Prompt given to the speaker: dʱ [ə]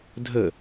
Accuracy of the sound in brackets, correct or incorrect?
correct